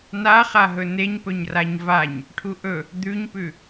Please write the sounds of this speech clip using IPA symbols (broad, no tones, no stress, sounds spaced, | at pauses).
n a χ a ɦ ɵ n e ɲ p ɵ ɲ r a ɲ v a ɲ | ʈʰ u ʔ ɵ | d̪ ʉ ɲ p ʉ